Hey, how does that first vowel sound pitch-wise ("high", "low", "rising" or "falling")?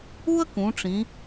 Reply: high